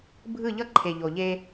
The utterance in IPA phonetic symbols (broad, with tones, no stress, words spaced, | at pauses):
bʱɯ˦˨ʎʌ˦ǃʰe˨ ʎo˨ʎe˧